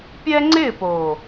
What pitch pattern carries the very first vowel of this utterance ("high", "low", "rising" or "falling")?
high